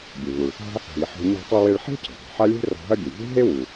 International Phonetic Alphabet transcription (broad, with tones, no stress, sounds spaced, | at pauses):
bʲ e˩ β u˩ ɭ θ a̤˥ | ɦ i˩ ħ ɔ̤˧ ɲ a̤˧ tˤ i˧ w e˧ ɭ ħ e̤˥ cʰ e̤˩ tˤ e̤˩ ħ a˥ lʲ e̤˥ r ɔ̤˧ ɦ ɐ˥ bʲ e˩ vʲ e̤˥ ɦ e˥ w u˩